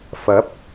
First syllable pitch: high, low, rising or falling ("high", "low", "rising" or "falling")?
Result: rising